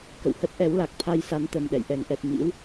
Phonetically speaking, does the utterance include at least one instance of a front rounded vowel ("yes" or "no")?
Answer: no